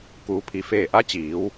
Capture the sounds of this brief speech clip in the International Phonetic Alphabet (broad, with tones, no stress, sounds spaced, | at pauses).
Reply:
k uː˩ pʰ i˩ f eː˧˩ ʔ a˧˥ t͡ɕ iː˩˧ w